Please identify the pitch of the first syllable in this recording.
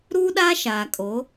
high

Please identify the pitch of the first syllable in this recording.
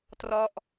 falling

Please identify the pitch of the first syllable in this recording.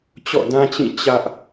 falling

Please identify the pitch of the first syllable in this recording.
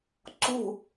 falling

